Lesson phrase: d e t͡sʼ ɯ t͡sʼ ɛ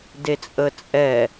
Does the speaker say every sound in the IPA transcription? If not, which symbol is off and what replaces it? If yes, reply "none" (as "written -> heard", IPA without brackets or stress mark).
ɯ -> ə